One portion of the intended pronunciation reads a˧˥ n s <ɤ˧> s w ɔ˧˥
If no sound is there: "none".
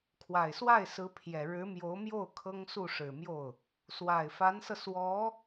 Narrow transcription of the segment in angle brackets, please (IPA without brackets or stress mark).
ɤ˧